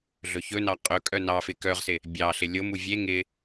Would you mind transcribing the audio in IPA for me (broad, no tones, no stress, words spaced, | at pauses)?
ɮɵçɵnɑ qʼɵkʼœ nɑfɪ kœʁsɪ | bʲɑɬɪ lʲomu vʲe ŋɪ